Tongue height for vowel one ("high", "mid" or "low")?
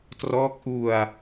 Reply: mid